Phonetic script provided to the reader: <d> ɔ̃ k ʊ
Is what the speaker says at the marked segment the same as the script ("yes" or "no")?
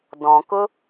yes